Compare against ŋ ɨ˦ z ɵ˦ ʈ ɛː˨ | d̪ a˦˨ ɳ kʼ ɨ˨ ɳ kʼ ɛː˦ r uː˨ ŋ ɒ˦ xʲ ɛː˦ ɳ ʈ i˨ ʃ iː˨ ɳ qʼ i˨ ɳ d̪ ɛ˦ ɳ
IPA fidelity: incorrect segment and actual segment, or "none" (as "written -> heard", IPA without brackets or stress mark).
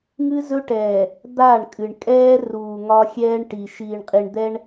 none